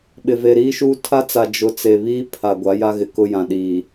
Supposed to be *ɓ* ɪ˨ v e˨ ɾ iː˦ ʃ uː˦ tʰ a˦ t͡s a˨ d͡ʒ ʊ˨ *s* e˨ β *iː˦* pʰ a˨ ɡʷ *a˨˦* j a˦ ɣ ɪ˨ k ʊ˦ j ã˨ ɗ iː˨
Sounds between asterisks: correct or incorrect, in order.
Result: correct, incorrect: t͡s, correct, correct

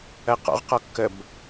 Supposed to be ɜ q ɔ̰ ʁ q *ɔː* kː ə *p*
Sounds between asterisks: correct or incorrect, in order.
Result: incorrect: ɔ, incorrect: b

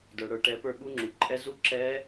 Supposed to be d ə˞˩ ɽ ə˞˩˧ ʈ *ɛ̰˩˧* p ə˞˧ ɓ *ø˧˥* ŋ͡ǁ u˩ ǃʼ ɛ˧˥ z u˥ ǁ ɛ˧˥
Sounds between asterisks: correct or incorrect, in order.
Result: incorrect: ɛ˩˧, incorrect: u˧˥

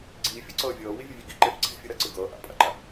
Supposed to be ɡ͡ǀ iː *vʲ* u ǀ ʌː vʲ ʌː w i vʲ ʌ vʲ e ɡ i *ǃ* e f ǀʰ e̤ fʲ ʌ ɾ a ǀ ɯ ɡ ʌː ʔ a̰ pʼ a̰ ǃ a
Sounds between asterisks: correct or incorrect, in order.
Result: incorrect: fʲ, correct

